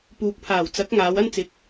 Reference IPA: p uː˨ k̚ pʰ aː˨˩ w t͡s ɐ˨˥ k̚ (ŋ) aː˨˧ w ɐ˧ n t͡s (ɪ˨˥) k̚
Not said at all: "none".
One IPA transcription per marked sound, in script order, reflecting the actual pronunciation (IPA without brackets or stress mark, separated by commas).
ŋ, ɪ˨˥